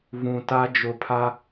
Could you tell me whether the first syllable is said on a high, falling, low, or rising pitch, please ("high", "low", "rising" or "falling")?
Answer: low